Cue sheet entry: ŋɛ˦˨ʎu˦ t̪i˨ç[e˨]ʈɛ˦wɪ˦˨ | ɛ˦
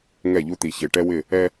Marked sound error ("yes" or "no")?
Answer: no